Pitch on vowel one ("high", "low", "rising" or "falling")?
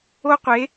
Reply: high